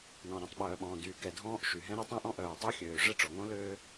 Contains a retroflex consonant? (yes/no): yes